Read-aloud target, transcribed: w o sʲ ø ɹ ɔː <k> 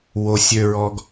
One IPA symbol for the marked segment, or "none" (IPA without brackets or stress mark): ɡ